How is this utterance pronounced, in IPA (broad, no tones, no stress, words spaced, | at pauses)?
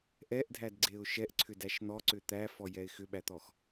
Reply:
ʔɛʔdʱædɡ͡ǀeʊ̯ ʃɛʔǀʰʏdæʃ n̪ɔǀʏ t̪æfɔjɛɪ̯ xʏɓæt̪ɔx